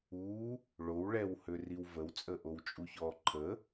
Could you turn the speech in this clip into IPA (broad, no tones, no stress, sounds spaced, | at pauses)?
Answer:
u | ɭ o w ɭ ɛ w h ø r i w v ə w t͡sʼ ə ʔ o w t͡ʃʼ u ç ɔ ǃʰ ə